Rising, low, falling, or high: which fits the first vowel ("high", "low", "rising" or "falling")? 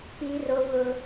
high